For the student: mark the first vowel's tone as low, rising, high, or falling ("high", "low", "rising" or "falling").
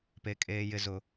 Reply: high